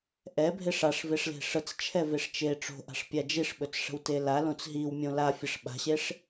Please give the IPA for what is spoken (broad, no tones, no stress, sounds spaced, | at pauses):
ʔ ɛ bʱ e ʂ a ʂ v e ʂ l e̤ ʂ ə t͡s t͡ʃʰ ɛ v e ʂ t͡ʃ e ʈ͡ʂ o̤ ʔ a̤ ʂ pʲ a d͡ʒ i ʂ ɓ ɵ t͡s ʂ ə̤ w t e l a l õ t͡s ɦ i w mʲ õ l a fʲ ə ʂ ɓ a̤ ɕ e ʂ